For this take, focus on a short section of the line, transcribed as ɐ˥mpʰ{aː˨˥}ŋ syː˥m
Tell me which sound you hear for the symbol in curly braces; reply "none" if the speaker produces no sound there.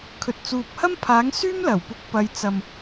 aː˨˥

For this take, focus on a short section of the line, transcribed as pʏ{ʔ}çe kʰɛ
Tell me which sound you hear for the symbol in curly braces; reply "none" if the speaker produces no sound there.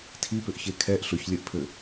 ʔ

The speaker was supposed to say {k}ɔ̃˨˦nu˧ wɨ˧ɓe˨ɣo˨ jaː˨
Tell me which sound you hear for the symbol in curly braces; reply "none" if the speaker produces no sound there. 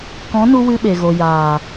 k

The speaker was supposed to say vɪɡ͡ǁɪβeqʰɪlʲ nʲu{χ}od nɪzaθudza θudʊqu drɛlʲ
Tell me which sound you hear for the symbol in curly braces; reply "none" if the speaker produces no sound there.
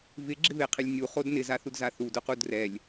χ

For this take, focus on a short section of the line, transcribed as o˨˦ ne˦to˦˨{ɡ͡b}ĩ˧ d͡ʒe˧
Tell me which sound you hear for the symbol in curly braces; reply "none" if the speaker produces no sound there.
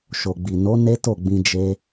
ɡ͡b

